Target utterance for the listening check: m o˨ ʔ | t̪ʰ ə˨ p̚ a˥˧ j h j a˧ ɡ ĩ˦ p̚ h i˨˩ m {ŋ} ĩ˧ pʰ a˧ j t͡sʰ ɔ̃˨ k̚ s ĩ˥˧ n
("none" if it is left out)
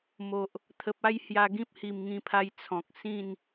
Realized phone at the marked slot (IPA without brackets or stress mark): ŋ